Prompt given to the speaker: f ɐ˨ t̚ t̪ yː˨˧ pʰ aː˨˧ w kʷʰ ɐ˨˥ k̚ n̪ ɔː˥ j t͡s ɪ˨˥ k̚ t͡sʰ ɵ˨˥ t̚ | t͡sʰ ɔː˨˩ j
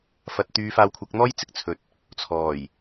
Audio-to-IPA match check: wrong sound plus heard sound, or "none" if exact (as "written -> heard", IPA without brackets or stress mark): pʰ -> f